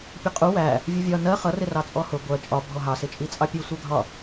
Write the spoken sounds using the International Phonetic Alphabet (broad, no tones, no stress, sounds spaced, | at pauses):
pʲ ʊ qʼ u w æ | vʲ u vʲ ɒ n ɜ χ ʌ r ɪ r ɑ t͡sʼ ɔ h ʊ ɡʷ ɜ t͡ʃʼ ɒ bʱ ɔ ɦ ɑ s ɪ t͡ʃʼ i t͡sʼ ɑ pʲ u sʷ ɜ ɡʱ ɒ